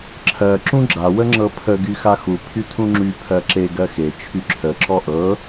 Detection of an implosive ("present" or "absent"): absent